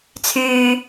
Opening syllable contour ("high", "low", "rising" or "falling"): low